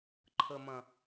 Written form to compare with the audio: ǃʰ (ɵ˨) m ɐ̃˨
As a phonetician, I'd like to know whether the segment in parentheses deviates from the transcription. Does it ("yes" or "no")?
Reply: yes